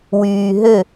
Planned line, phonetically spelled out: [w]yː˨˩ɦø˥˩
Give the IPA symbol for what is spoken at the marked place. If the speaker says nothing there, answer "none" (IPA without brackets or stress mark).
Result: w